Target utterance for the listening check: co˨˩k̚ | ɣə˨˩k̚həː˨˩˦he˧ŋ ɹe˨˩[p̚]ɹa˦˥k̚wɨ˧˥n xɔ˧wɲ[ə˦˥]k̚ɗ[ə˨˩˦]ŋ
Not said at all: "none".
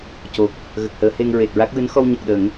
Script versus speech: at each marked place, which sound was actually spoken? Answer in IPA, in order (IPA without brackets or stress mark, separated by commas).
t̚, ə˨˩, ə˨˩˦